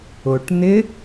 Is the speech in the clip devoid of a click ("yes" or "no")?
yes